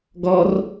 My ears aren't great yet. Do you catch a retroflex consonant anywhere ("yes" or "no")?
no